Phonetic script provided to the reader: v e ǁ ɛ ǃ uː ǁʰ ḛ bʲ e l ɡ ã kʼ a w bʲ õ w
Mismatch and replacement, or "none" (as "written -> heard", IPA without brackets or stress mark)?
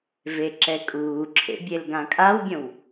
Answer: ǃ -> kʼ